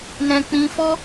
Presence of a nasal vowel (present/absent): present